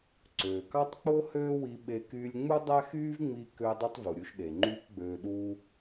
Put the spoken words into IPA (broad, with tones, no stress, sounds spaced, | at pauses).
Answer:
ǀ øː˩ k ɑ˥ tˤ k͡p o˥ h øː˥ w i˧ ɓ e˧ k yː˧ lʲ ŋ͡m u˥ dˤ æ˥ x yː˥ v ŋ͡m i˧ k ø˧ dˤ u˥ tˤ v u˩ ɾʲ u˧ ʃ ɗ e˩ ŋ͡ǃ yː˥ k ɡ͡b øː˧ ɗ uː˥